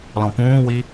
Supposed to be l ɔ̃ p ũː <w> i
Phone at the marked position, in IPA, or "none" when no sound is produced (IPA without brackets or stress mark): w